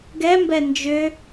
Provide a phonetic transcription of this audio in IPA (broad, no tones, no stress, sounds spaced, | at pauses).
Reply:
ɡ ɛ m b ɛ n d͡ʒ ʏ